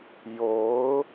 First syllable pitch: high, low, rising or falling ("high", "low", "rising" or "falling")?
rising